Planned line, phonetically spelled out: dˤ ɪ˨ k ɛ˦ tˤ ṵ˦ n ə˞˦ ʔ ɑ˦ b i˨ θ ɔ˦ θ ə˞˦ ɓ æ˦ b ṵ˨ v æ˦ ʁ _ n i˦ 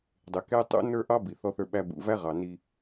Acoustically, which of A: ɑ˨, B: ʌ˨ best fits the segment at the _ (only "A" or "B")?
A